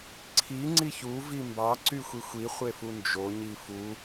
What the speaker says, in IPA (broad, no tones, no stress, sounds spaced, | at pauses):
ǀʰ i ŋ͡ǀ i ç u v i m b ɑ ǀ y xʷ i xʷ i χʷ e f u n d͡ʒ o ɲ i f u